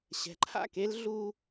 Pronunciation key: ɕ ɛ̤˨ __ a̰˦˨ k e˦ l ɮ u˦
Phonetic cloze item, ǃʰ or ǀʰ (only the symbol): ǃʰ